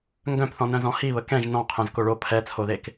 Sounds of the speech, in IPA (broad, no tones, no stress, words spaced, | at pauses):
ŋɡœ̃pθɔ̃nœ̃zɔ̃ hiβə kɛ̃ʒ nɔ̃ qʰẽzkoɭo pʰɛt͡sʰoðek